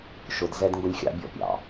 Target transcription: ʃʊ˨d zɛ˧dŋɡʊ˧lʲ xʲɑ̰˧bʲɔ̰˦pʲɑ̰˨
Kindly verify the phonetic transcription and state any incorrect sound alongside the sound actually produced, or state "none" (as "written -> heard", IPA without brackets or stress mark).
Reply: none